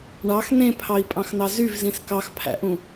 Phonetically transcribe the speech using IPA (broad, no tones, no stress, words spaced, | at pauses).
ɳɑx nẽpʰɑi̯pʼɑ̃xnɑ zyvzĩs kɑxpʰæ̰ʔũ